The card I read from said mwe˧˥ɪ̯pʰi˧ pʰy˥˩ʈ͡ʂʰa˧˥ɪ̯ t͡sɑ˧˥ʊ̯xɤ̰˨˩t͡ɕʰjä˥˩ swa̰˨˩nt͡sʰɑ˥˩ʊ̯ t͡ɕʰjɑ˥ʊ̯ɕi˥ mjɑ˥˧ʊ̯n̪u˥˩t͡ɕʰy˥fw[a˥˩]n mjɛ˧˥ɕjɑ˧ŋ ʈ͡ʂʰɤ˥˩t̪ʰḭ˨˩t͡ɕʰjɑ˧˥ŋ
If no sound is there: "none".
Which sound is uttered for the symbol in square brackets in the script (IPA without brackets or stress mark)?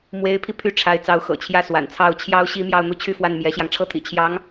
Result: a˥˩